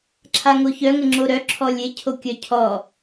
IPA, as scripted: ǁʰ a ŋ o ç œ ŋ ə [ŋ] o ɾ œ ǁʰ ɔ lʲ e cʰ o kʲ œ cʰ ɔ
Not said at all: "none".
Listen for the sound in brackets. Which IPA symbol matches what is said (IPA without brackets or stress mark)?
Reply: ŋ͡ǁ